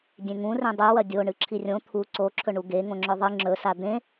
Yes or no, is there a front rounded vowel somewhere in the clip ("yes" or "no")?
no